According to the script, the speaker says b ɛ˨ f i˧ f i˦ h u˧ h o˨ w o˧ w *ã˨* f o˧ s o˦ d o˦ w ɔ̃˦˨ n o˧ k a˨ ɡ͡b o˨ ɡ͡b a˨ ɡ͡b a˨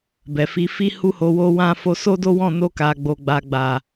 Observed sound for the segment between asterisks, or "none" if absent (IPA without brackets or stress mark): ã˧